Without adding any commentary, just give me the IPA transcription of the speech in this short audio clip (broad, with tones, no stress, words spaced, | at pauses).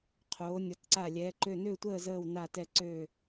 qʰoː˩˧nʲɔ˩˧tǀa˧˩ lʲɛː˩˧ǃø˧˩ nø˥˨tʷəː˥˨zəː˧˩w na˧˩tɛ˧˩ ǀøː˧˩